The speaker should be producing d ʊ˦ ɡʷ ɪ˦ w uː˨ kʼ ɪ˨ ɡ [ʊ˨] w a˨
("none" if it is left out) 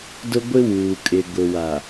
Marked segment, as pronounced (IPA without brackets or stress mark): ʊ˨